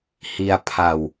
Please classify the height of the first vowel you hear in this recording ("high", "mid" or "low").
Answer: high